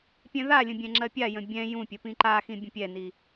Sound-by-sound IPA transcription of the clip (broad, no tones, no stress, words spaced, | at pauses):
pʲɛ̃ðalʲə̃ bʲɛ̃ŋ͡ǁɜpʲajə̃ bʲɛ̃ jũpʲə pĩǃaxĩ bʲə̃pʲɛni